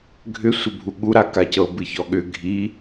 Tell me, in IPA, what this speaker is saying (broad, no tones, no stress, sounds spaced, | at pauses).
ɡʱ ʏ sʷ ə bʱ u ɠ u ɾ a k a c ɤ b ɨ ç ɔ ɠ ʏ ɡʱ i